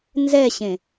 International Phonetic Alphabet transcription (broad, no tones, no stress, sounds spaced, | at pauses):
n z ɛ ɕ ẽ